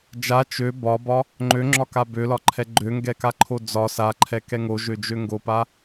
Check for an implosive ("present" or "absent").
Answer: absent